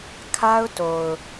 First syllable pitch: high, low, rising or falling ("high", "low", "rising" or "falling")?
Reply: high